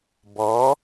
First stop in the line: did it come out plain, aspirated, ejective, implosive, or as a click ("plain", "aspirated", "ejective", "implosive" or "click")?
plain